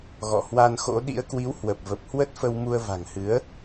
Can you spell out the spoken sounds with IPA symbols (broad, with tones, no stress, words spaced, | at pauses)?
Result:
ɣɔ̰˧˨hwa˧nxo̰˧˥ ɗḭ˧˥ə̯kwi˨˦whwə˨˩p̚və˨˩p̚ hwə˦˥t̚fə˧wmu˧ə̯ va̤˨˩ŋhɨ˨˦ə̯